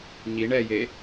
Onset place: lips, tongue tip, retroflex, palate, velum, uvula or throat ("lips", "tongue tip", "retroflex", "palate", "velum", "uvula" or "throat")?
palate